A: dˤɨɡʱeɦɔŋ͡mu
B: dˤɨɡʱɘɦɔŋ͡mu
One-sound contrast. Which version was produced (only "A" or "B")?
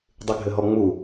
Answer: B